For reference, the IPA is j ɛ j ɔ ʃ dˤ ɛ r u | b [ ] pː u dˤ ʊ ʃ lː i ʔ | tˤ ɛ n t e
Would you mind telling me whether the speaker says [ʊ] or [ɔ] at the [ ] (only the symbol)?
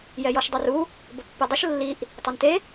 ʊ